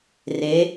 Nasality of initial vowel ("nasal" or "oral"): oral